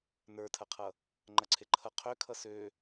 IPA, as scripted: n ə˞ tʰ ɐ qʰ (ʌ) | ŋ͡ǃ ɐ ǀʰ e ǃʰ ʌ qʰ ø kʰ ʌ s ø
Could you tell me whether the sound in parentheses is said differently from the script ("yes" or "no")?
no